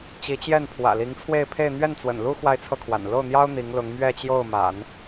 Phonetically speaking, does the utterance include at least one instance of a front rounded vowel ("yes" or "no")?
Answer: no